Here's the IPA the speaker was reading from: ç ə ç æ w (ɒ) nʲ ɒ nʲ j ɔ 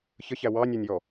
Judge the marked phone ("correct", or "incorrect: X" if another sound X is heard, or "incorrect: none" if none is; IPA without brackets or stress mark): incorrect: ɑ